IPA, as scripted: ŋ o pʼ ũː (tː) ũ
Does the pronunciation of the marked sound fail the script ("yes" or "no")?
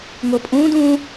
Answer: yes